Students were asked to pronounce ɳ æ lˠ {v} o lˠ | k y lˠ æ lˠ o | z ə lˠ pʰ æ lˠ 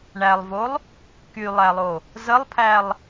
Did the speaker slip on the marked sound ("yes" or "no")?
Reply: no